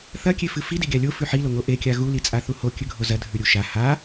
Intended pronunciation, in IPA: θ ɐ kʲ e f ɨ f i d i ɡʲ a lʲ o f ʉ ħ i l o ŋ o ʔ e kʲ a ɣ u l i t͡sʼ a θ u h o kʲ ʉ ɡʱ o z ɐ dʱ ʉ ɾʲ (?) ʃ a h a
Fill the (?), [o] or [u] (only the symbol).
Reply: u